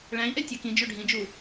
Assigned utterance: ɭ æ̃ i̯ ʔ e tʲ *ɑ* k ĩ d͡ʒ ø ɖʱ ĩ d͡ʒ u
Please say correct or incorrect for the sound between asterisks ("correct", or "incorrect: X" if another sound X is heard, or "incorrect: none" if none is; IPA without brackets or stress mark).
correct